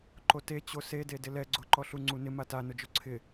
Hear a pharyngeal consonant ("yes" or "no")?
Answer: no